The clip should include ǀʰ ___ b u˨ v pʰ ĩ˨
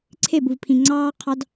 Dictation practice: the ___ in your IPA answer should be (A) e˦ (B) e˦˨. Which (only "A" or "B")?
B